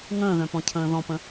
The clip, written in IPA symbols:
ŋ ə̃ː ð œ̃ p ɔ̃ cʰ ə̃ː ð ɔ̃ p ə̃

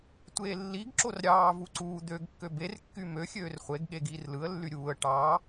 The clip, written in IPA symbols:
tʷ eː lː i ɡ ǁ o r ɾʲ ɑː v u ǀ uː d̪ ø ɡ kː ø b e r kː y m ø xʲ øː r χʷ e ɡ ɠ e ɡ iː r l ɯ ə̯ lː y ɾʲ uː ə̯ ʈ ɑː

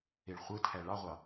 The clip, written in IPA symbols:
e ɭ χʷ ɯ tʰ æ ɭ ɑ ʁʷ ɑ

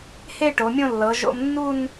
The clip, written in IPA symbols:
h e˥˧ ʈ o˩˧ mʲ õ˥˧ lː ɤ˩˧ ʒ o̰˧ m nː u˥˧ n

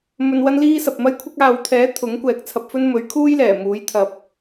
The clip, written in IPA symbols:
m ɵ˧ n w ɐ˥ n l iː˥ s ɐ˨ p̚ m ɐ˥ j kʷʰ ɪ˥ k̚ aː˨ w t̪ʰ ɛː˨˥ t̪ʰ ʊ˨˥ ŋ kʷ ɛː˨ k̚ t͡sʰ ɐ˧ p̚ f ɵ˥ n m ɵ˨˥ ɥ kʰ uː˥ j l ɛː˨˩ m uː˨˥ j t̪ʰ ɐ˨ p̚

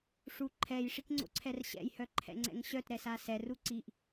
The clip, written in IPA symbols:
ʂ u ǃʰ ɛ j ʂ i k ŋ͡ǀ o̰ ǀʰ ɛ r ɕ ɛ̰ j h œ ǃʰ ɛ̰ ŋ͡ǀ ɛ̰ ŋ ɕ œ t ɾ ɛ s a s ɛ r u ǀ i ʔ

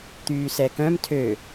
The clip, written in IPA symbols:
t̪ yː s ɛ k œ̃ m tʰ ø

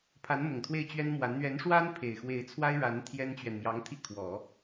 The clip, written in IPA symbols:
pʰ a˧˥ n m ʊ˨˩ ŋ t̪ʰ w e˥˩ ɪ̯ t͡ɕ ɥ ɛ˥ n m w a˧˥ n n̪ ɥ ɛ˧˥ n ʂ w a˥ n pʰ e˨˩ ɪ̯ x w e˧˥ ɪ̯ t͡sʰ w a˥ ɪ̯ ɻ a˧˥ n t̪ʰ j ɛ˥ n t͡ɕ ɥ ɛ˨ n m j ɑ˧˥ ŋ t̪ʰ i˥˩ kʰ w ɔ˨˩˦

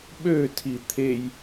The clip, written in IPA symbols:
ɓ ø tʰ i t̪ʰ e j

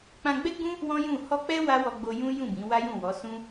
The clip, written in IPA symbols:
k͡p ã˧ ɡ͡b ɛ˦ ɡ͡b ũ˦ | w ɔ̃˦ j ũ˦˨ h ɔ˧ k͡p ɛ˦ w a˦ w ɔ˧ ɡ͡b o˧ j ũ˦ j ũ˦˨ b ĩ˨˦ w a˦ j ũ˦˨ w ɔ˨˦ s ũ˦

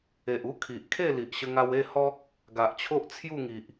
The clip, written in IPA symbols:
e˨ ʔ u˦ kʰ i˨ ʔ kʰ e˥˧ l i˨ ʔ ɕ ə˧ ŋ a˧ w e˥˧ h ɔ˦ k̚ | ɡ a˨ ʔ t͡ɕʰ o˦ ʔ t͡sʰ j u˥˧ ŋ i˨ ʔ

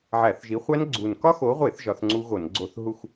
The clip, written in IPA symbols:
ʕ æ˧˩˧ θ ʒ i˨˦ χʷ æ˦˥ n ɡ͡ǀ u˨˩ n k ɒ˦˥ x o˨˦ ʁʷ e˧˩˧ θ ʒ ɒ˨˦ θ ŋ͡ǀ u˦˥ ɣ o˧˩˧ n ɡ͡ǀ o˧˩˧ θ ɦ u˦˨ x

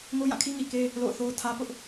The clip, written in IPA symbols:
ŋ o˦ j ã˦˨ kʰ i˦ ŋ i˨ k e˦ | l o̰˦˨ ʊ̯ θ o˦ ʊ̯ tʰ ä˦ p ʊ˦ ʔ

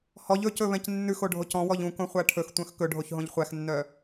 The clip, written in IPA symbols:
h ɔ ʎ ɵ c ɵ β ɛ̃ c nː ʉ x o ɖʱ o c ɔ̃ w ɔ ʎ ũ k õ χʷ æ ʈʰ ɵ x tʷ œ̃ x k ɵ ɖʱ o ç ɦ õ ʎ χʷ æ x nː œ

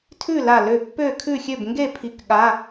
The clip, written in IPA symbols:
tʰ ʉ˥˨ l a˧˩ l ø˧˩ pː ø˥˨ kʰ ʉ˥˨ xʲ ø˥˨ b ŋ ɡ e˥˨ pʰ i˧˩ k ɠ a˧˥˧

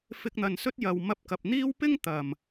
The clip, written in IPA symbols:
f ɪ˧ k̚ n̪ ɐ˨ n s ɵ˥ t̚ j ɐ˨ w m ɐ˧ p̚ k ɐ˨ p̚ n̪ iː˥ w p ɪ˥ ŋ t̪ ɐ˨˩ m

